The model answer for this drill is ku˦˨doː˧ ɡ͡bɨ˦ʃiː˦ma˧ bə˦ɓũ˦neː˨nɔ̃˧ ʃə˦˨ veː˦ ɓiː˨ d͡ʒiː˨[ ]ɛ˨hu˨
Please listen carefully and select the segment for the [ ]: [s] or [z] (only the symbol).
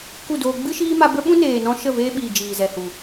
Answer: z